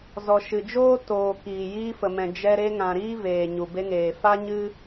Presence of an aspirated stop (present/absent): absent